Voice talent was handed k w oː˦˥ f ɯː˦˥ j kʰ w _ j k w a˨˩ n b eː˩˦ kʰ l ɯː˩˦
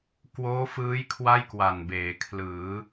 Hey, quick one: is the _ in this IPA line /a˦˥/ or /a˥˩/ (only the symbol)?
a˥˩